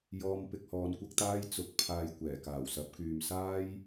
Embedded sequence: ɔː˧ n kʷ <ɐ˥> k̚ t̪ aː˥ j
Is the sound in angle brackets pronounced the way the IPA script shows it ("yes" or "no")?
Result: yes